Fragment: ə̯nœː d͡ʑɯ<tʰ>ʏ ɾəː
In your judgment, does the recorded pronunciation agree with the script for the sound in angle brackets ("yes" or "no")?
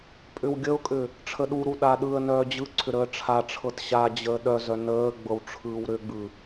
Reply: no